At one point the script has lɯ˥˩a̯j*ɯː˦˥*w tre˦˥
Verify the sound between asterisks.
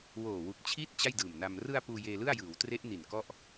incorrect: ɯː˩˦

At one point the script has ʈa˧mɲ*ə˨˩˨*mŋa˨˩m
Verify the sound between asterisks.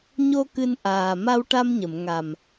correct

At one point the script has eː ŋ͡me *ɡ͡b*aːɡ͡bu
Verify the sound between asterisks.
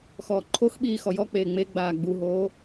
correct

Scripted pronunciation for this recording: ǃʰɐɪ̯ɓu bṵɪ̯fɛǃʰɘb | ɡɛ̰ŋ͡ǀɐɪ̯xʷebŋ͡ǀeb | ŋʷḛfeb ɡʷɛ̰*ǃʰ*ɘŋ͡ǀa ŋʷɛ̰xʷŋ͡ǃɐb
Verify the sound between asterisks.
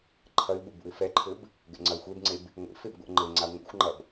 incorrect: ŋ͡ǃ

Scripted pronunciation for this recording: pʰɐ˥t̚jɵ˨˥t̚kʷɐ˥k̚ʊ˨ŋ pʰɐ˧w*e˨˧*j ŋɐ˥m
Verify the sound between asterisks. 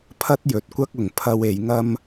correct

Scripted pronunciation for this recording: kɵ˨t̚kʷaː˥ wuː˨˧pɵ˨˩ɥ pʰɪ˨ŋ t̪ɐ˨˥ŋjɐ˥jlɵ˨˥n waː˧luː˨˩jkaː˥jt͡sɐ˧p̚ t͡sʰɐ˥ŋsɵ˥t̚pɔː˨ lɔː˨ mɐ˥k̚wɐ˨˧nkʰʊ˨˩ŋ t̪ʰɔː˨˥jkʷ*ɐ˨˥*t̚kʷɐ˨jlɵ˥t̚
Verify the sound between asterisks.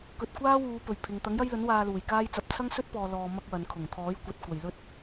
correct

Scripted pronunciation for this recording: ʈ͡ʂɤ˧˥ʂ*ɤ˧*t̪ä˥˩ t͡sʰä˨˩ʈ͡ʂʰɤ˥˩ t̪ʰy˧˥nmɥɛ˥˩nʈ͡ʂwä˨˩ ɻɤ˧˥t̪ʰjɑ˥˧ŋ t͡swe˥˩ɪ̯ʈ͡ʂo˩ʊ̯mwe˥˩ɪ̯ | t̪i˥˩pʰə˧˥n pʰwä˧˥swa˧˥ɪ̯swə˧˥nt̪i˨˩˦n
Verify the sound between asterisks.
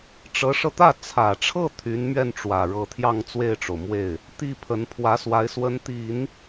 correct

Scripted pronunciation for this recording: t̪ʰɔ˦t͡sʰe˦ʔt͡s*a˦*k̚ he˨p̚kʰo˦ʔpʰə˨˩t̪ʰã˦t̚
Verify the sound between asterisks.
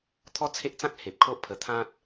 incorrect: ã˦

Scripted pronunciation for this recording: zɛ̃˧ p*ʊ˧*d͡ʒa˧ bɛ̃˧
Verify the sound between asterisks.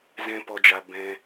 incorrect: ɔ˧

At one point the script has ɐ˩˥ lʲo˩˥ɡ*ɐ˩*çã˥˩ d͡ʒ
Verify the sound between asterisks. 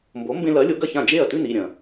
incorrect: ɐ˥˩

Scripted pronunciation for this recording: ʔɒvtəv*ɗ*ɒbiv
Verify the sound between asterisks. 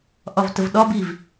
correct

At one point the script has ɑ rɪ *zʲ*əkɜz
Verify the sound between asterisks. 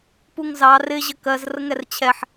incorrect: ʑ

